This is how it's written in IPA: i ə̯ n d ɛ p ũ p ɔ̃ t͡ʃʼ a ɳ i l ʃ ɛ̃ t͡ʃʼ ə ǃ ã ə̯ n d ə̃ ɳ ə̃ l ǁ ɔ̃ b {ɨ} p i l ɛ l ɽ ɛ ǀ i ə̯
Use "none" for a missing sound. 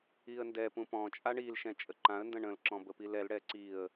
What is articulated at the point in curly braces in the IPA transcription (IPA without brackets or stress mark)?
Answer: ə